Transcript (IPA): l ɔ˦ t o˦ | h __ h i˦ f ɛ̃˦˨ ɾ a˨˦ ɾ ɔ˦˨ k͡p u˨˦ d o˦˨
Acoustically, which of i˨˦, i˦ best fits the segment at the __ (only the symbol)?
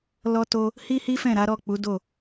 i˦